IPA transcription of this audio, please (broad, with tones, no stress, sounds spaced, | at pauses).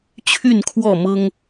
t͡ɕʰ y˥˨ n kʰ w ɔ˥˨ m ɤ˦ ŋ